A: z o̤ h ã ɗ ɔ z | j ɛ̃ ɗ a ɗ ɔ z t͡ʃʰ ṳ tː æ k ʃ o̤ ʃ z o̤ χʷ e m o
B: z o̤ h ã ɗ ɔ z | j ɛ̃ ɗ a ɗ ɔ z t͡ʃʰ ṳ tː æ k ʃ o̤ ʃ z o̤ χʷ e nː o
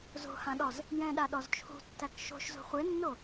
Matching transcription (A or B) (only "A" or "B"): B